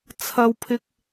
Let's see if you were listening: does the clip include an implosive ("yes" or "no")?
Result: no